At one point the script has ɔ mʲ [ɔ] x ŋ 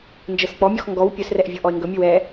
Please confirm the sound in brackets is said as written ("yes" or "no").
yes